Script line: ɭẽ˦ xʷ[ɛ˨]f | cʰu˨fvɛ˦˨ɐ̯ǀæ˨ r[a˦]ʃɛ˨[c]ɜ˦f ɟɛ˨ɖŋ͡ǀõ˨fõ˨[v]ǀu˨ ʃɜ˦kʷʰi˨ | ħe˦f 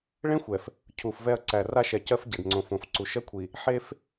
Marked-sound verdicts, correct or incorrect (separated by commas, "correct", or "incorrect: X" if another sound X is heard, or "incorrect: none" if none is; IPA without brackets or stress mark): correct, correct, correct, incorrect: f